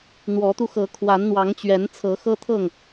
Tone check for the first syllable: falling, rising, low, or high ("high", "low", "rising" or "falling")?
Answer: rising